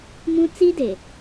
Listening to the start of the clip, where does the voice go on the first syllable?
high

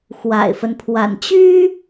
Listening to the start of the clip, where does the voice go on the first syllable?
low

